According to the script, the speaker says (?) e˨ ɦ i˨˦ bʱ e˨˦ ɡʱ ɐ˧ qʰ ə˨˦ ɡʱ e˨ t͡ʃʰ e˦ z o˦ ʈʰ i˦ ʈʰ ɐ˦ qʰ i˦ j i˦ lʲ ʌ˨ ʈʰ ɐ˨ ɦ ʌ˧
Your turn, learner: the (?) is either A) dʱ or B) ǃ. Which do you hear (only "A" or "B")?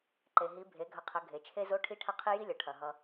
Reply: B